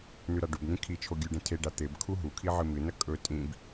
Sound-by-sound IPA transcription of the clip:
n ʉ ɾ a ɖ u b n ĩ kʰ i t͡ʃʰ o ɡʲ ʉ ɖ ẽ tʰ e ɖ a t̪ e b kʰ u ɦ u kʰ i ʕ ɨ m ɨ n ɐ kʼ ɵ tʼ ĩ b

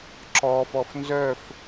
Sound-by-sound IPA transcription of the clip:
ǁ ɔ f ɔ f n z œ f

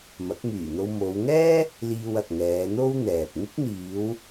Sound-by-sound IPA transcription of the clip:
m ɐ˨˥ k̚ m yː˨˩ n̪ o˧ w m o˨˧ w ŋ ɛː˥ | l iː˧ w ɐ˨ k̚ ŋ ɛː˨˧ n̪ o˥ w n̪ ɛː˨ p̚ ŋ ɪ˥ k̚ n̪ iː˨˧ w

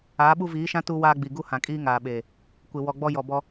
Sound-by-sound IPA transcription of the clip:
aː˨˦ ɓ u˦ v iː˨˦ ʃ ã˦ t u˦ w aː˦ ɡ͡b i˨ ɡ u˦ h ã˨ kʼ iː˦ ŋ aː˨ ɓ eː˨ | kʷ ɪ˨ w ɔ˨ ɡ͡b ɔ˦ j ɔ˨ b ɔ˦

